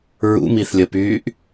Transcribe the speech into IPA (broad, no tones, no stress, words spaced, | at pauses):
ɹṵmiθlʲəpyːʔ